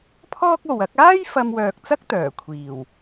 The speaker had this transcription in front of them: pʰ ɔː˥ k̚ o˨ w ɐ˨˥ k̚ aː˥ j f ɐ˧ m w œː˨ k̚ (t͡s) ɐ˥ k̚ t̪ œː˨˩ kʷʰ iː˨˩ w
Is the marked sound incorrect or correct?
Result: correct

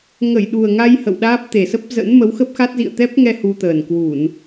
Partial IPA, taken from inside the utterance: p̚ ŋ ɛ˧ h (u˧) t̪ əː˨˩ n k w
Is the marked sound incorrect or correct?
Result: correct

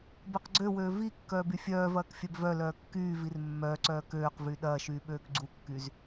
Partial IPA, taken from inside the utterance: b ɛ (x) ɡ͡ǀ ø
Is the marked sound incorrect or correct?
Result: incorrect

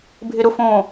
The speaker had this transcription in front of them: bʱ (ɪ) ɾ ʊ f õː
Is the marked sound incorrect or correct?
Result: correct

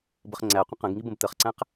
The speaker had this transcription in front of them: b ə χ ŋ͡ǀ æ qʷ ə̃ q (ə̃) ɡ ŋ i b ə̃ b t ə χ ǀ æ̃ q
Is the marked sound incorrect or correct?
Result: correct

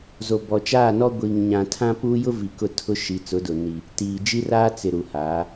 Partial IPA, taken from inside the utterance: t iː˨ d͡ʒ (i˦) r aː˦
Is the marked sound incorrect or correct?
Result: correct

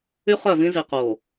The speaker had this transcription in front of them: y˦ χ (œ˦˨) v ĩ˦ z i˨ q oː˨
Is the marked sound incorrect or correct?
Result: correct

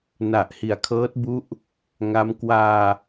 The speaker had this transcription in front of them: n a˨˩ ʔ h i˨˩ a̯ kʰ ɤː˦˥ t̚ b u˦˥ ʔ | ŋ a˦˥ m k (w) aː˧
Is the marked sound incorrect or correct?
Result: correct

